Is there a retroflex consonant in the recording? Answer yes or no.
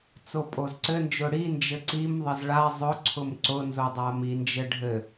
yes